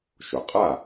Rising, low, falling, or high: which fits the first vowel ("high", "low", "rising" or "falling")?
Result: low